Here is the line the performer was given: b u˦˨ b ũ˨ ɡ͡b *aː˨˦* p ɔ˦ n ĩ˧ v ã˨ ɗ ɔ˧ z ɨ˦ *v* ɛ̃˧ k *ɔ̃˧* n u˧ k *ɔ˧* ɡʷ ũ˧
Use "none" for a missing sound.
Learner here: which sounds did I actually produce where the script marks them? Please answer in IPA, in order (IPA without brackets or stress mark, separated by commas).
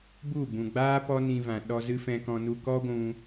aː˦, f, ɔ̃˧, ɔ˦